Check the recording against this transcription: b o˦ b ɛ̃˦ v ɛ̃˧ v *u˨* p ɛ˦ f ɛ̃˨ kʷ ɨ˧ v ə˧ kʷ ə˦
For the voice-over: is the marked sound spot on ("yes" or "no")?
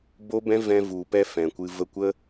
yes